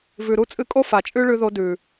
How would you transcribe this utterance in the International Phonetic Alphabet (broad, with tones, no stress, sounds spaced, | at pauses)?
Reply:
v ʉ˨ ɾ u˧ t͡sʼ ɨ˧ kʼ o˦ f a˨ t͡ʃʼ ʉ˦ ɭ ʉ˧ ð o˧ d ʉ˨